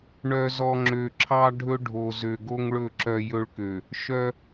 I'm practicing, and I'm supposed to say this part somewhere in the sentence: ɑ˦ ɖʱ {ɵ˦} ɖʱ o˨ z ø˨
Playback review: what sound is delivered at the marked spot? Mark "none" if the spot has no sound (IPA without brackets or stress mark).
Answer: ɵ˦